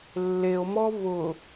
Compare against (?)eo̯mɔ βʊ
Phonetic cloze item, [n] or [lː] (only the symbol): lː